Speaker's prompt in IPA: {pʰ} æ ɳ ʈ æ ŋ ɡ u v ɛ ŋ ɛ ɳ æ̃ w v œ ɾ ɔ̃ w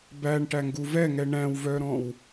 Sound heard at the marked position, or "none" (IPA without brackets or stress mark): b